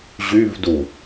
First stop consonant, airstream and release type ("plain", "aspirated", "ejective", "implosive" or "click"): plain